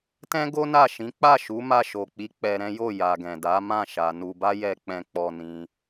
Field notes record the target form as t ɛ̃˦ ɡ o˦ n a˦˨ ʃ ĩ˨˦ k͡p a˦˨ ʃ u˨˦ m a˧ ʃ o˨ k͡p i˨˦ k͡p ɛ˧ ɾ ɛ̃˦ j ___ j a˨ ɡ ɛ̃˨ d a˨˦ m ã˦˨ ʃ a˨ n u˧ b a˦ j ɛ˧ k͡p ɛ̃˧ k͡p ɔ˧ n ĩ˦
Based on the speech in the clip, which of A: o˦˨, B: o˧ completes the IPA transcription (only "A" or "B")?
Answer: A